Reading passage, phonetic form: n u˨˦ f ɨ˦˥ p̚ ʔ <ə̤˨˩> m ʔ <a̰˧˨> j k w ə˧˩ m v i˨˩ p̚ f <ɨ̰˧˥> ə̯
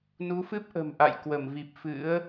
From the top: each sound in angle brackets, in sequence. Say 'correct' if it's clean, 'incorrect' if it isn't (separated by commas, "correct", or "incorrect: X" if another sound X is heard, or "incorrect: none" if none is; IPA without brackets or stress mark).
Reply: correct, correct, correct